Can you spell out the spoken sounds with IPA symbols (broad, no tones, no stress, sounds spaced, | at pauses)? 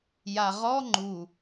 j a ʁ ɔ ŋ͡ǃ u